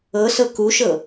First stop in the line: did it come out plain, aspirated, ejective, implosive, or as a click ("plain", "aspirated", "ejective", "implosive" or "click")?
plain